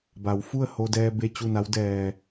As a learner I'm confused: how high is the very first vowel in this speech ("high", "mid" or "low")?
low